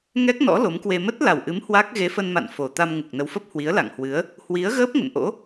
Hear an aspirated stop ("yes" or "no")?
no